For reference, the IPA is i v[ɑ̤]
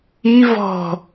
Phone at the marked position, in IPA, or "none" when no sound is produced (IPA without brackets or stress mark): ɔ̤